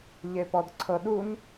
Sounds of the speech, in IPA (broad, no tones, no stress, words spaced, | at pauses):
ʎepɔdǀʰɤɗun